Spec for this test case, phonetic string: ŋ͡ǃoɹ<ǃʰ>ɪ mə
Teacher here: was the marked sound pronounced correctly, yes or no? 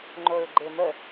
no